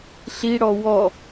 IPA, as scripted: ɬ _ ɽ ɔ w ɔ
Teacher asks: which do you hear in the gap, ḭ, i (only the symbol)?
i